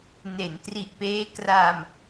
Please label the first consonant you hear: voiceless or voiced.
voiced